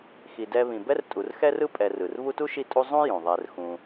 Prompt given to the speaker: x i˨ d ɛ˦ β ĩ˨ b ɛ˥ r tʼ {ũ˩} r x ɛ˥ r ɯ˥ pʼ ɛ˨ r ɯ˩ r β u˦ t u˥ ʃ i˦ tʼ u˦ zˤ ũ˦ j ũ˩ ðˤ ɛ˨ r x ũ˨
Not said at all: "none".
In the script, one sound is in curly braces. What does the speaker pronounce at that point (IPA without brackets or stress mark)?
u˩